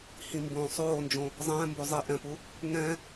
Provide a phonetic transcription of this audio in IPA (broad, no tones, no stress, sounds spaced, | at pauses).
h ĩ m b õː sˤ oː n d͡ʒ õ | zˤ ɛ̃ː m b o zˤ i ʔ ɛ̃ p u | ŋ ɛ̃